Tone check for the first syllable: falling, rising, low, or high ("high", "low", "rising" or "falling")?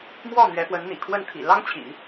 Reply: falling